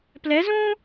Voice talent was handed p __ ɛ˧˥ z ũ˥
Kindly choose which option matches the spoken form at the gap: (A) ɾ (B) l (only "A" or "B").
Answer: B